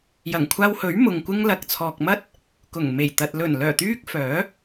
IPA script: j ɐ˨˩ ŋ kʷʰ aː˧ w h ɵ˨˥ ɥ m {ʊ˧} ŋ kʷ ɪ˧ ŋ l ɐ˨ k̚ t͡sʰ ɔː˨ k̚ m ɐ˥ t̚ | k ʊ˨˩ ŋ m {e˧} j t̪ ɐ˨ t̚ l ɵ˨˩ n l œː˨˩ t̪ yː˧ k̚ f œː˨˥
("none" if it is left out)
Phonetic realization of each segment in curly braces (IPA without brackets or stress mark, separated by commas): ʊ˨, e˨˩